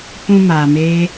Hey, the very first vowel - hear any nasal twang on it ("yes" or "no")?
yes